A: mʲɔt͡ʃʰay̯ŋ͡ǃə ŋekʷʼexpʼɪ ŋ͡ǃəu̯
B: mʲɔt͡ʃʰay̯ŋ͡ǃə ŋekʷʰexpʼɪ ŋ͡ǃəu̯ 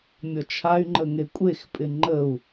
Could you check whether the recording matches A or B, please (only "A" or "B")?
A